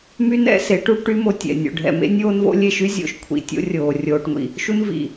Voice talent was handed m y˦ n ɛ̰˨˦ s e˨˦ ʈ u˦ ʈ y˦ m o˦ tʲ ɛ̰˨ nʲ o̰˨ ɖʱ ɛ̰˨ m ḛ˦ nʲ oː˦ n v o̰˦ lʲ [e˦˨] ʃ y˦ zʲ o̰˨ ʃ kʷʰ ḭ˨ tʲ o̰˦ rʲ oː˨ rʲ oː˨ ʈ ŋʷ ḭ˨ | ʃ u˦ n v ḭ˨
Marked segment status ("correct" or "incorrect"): correct